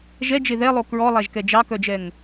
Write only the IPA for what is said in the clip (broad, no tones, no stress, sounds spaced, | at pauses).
ʒ ɛ d͡ʒ e ð ɛ lˠ o k ɹ ɔ lˠ æ ʒ k ɛ d͡ʒ ɑ k œ d͡ʒ ɛ ŋ